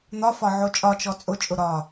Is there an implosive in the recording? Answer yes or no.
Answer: no